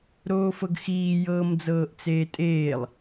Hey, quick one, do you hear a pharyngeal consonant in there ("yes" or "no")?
no